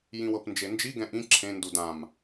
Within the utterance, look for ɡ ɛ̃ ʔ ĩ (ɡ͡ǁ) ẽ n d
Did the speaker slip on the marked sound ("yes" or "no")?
yes